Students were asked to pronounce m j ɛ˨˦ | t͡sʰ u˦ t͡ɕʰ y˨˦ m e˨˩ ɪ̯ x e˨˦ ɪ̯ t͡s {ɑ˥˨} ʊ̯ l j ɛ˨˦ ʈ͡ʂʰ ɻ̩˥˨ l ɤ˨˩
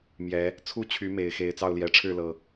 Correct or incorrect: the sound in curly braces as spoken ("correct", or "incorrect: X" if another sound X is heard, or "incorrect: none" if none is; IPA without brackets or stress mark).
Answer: correct